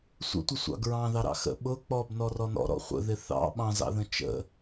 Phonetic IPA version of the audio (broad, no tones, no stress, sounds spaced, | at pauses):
sʷ ə̰ tʷ ə sʷ ɑ̰ ɡ ɹ ɑ̃ ð ɑ ɾ ɑ̰ x ə̰ ɓ ʊ k͡p ɔ b n ɔ r ɔ n ɔ̰ ɾ ɔ̰ χʷ ə̰ ð ɪ θ ɑ̰ ɓ ɑ̃ z ɑ̰ ð ə̃ t͡ʃ ə̰